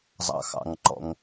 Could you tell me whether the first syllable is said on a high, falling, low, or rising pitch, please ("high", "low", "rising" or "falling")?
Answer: low